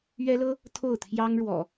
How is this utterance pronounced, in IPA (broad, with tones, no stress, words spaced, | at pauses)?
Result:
ɥɛ˦lɤ˦ | t̪ʰo˥˨ʊ̯ t̪ʰjɑ˦ŋɻwɔ̰˨˩